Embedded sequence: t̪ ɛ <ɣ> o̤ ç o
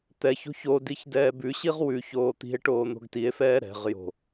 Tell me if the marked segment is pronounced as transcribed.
no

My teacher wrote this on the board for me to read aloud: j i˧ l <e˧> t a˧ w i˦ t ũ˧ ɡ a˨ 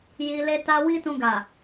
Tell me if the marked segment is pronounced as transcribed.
yes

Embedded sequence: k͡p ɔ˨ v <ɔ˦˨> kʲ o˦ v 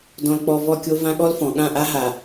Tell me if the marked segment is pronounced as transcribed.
yes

